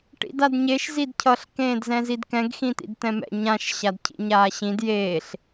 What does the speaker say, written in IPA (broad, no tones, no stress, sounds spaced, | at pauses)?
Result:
ʈ ḭ d a d ɲ e ʃ z i d cʰ ʌ ɬ k ẽː d z ɛ̃ z i d k ɛ̃ ɡ x ĩ t̪ ḭ d t̪ ɛ̃ m ɛ̰ ɲ ã ʃ ɕ a d cʰ ḭ ɲ aː ɕ ĩ d j eː ɬ